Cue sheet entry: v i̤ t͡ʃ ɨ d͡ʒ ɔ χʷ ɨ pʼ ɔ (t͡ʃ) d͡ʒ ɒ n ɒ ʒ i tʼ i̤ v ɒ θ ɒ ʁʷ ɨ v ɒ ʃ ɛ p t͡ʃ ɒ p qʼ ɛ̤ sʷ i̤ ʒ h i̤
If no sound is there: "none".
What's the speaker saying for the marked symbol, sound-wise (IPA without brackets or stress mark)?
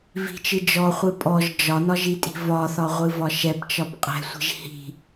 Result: ʒ